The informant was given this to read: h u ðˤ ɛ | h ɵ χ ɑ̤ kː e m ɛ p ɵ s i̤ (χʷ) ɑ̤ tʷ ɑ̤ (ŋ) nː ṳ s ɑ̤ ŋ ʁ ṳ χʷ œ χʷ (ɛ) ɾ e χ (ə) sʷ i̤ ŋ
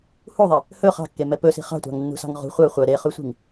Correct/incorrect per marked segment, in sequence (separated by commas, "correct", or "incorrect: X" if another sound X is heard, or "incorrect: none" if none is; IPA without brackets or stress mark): incorrect: χ, correct, incorrect: œ, incorrect: ʉ